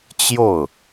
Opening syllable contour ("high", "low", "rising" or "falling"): falling